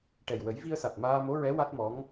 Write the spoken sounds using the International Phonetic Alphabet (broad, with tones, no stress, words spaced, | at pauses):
ʈɛ˨˩j wə˨˩˦jvi˧ə̯sa˨˩t̚ maː˧ mo˧˥ɹɛ˧˥ wa˦˥t̚mɔ˧˥ŋ